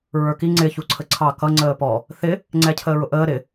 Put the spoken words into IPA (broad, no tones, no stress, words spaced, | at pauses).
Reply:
ɹə˞ki ŋ͡ǀɪ çuǀʰəǀʰɑ kʌ ŋ͡ǀəːpɔ | θɪ | ŋ͡ǀɛcʰəːɹʊʔəː ɾɪ